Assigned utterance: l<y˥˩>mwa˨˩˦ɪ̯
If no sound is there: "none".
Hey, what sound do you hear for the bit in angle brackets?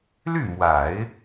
y˥˩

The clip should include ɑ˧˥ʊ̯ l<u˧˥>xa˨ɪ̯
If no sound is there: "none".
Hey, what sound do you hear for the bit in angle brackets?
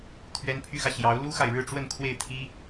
u˥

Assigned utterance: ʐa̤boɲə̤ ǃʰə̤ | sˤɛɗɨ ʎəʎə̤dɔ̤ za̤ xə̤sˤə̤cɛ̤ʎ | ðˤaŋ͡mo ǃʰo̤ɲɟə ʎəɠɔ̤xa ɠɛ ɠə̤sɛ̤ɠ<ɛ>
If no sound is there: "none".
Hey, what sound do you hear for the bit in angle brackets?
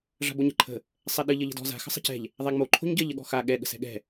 ɛ̤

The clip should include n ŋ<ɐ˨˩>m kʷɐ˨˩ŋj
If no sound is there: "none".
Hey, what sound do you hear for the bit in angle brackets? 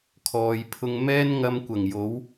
ɐ˧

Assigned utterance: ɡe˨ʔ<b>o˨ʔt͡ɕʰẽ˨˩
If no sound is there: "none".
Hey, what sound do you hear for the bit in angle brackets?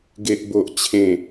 b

